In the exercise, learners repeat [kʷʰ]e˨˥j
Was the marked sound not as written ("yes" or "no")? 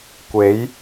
yes